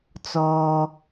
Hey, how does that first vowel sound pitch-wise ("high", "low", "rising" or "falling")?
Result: low